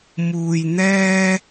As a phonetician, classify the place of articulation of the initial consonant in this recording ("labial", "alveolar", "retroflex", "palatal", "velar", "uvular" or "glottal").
labial